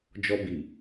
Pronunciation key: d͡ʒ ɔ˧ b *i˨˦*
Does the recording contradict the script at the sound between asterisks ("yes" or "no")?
yes